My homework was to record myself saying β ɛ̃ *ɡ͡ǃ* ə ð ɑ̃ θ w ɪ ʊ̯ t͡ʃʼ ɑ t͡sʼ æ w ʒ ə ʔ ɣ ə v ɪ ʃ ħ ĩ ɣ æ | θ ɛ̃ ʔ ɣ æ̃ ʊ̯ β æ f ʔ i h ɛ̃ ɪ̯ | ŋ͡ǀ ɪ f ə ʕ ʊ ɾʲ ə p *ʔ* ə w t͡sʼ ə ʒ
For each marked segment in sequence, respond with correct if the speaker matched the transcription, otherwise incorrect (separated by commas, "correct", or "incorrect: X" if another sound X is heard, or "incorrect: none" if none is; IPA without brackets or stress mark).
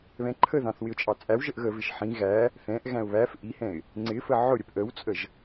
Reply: incorrect: ǃʰ, correct